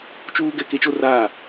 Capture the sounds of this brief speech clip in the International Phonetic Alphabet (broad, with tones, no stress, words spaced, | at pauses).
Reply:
t͡ʃuː˦ ɡɛ˨ ke˦t͡ʃo˦raː˦˨